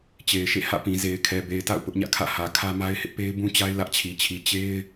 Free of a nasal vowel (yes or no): no